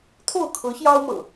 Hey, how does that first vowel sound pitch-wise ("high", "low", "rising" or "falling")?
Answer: falling